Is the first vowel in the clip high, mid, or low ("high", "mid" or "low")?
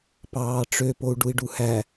low